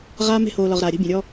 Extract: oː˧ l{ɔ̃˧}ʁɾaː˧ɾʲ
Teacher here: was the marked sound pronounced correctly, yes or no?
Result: no